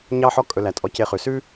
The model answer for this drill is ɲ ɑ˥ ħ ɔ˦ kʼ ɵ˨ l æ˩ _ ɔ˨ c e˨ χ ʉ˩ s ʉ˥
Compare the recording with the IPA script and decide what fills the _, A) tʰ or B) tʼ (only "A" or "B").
B